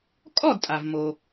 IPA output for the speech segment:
kʼ ɔ˥˨ d tʼ a˩ v m o˩

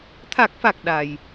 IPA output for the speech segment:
t̪ʰ a˨˩ k̚ f a˨˩ k̚ ɗ a˨˩ j

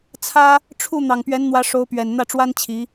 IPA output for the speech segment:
t͡sʰ ä˥ | ʈ͡ʂʰ u˥˩ n̪ ɑ˨˩ ŋ p ɥ ɛ˧˥ n n̪ w ä˧˥ ʂ o˧˥ ʊ̯ p ɥ ɛ˨˩ n n̪ ä˥˩ ʈ͡ʂ w a˥ n t͡ɕʰ i˧˥

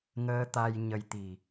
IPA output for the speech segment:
ŋ əː˧ t̪ a˧ j ɲ ə˧ j t̪ i˨˩

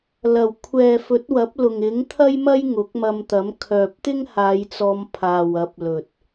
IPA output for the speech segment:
l ɐ˨˩ w kʷʰ ɛː˨ f ɵ˨˥ t̚ w ɐ˨˥ p̚ l ʊ˨ ŋ ɪ˨˥ ŋ t̪ʰ ɐ˥ j m ɐ˥ j ŋ ʊ˨˥ k̚ m ɐ˧ m t̪ ɐ˨˥ m kʰ œː˨ p̚ t̪ ɪ˥ ŋ h aː˨˧ j t͡s ɔː˨˧ m pʰ aː˨ w ɐ˨˥ p̚ l ɵ˨ t̚

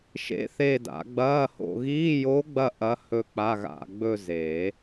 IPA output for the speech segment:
ʃ ḛ˧˥ θ e˦˨ d a̰˨˩˦ ɡ͡b ɐː˧˥˧ h o̰˦˨ ɣ iː˧˥˧ j o˧˥ ɡ͡b ɐ˦˨ ʔ ɐ˧˥ h ɵ˦˨ k͡p a˧˥˧ ɣ a̰˦˨ ɡ͡b ɵ˦˨ z eː˨˩˦

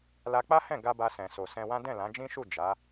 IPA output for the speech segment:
l a˧ k͡p a˦ h ɛ̃˦˨ ɡ a˧ b a˧ s ɛ̃˨ s o˨ s ɛ̃˧ w ã˦ d ɛ̃˦˨ l ã˨˦ d͡ʒ ĩ˦ ʃ u˦˨ d͡ʒ a˨˦

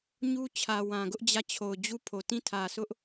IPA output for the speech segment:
ɲ u˦ t͡ɕʰ ä˨ w ã˨ ɡ ʊ˦ ʔ d͡ʑ ä˦˨ t͡ɕʰ o˨ ʊ̯ d͡ʑ u˦˨ pʰ o˨ t ĩ˦˨ tʰ ä˨ sʰ ʊ˦ ʔ

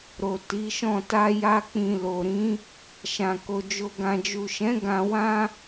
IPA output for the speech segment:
ɾ o˨ t i˨˦ ʃ ɔ̃˦˨ t a˧ j a˧ k͡p ĩ˨ l o˨ ɾ ĩ˨˦ | ʃ ã˨ k o˨ d͡ʒ o˨ ɡ ã˨ d͡ʒ u˨ ʃ ɛ̃˨˦ ɡ ã˧ w ã˦

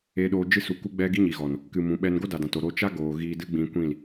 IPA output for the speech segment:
e˧ ɗ oː˧ d͡ʒ ɨ˧ s u˨ k u˧ ɡ͡b ɛ˦ ɡ i˦ ɲ i˨ ɣ ɔ˨ n | k ɨ˧ m ũ˨˦ ɓ ɛ˦ n ɡ o˦ d a˨ d ã˨ t o˨ ɾ oː˧ t͡ʃ a˦ ɡ oː˨ ɣ iː˧ d ɨ˦ ɡ͡b ĩ˧ kʷ ĩ˦˨ l

